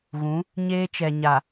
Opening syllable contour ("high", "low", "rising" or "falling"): rising